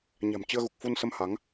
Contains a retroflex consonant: no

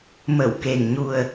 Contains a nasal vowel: no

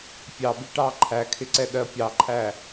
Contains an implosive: yes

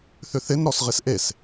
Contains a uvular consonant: yes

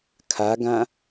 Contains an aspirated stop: yes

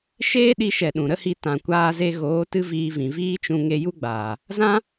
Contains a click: no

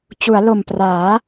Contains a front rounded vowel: no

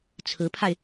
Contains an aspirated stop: yes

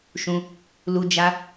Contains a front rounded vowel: no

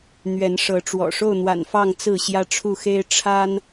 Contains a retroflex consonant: yes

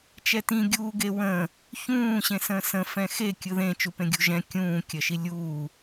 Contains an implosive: no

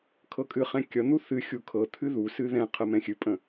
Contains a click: no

